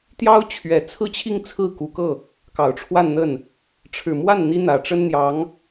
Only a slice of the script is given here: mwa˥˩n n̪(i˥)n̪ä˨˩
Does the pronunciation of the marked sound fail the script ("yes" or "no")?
no